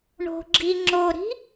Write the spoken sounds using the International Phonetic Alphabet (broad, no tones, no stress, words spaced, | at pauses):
ɳo̤ɡ͡ǁi ŋ͡ǁoɾi̤